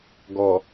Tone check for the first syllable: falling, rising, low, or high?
low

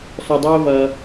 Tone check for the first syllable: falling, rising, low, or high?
low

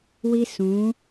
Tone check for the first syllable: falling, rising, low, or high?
high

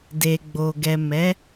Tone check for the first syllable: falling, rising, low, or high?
low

